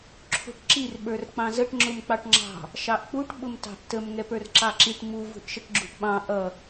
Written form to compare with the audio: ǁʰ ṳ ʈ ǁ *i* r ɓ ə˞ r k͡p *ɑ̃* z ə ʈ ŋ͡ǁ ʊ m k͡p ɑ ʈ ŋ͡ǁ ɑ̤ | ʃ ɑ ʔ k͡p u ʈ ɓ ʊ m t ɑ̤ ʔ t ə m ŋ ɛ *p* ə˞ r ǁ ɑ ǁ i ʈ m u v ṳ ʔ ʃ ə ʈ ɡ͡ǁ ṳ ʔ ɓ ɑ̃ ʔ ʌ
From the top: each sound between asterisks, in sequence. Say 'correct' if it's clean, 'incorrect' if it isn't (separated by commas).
correct, correct, correct